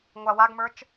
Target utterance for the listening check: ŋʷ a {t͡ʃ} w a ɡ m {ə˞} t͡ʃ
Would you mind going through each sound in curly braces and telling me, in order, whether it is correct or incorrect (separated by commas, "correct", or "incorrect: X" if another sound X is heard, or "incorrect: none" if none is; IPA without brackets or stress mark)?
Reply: incorrect: none, correct